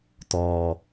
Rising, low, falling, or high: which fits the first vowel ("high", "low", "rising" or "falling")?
low